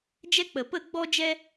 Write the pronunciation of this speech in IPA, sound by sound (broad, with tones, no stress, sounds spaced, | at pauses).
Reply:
d͡ʒ ɛ˦ k͡p ə˨ p ə˦˨ ɡ͡b ɔ˦ d͡ʒ ɛ˦